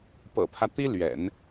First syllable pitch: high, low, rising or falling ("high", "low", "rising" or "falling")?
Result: low